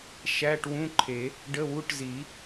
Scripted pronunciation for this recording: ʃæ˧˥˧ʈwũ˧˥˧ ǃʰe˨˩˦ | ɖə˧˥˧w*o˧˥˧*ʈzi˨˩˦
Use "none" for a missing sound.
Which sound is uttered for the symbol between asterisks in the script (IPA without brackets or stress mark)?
u˧˥˧